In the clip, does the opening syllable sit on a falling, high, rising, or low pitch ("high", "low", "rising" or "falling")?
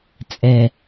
low